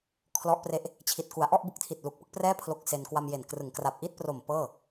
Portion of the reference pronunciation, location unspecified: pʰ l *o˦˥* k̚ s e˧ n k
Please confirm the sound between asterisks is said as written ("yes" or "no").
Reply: yes